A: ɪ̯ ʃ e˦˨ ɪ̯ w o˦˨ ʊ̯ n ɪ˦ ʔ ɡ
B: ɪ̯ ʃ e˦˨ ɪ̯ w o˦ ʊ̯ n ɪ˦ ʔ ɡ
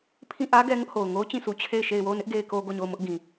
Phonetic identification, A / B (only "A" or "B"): A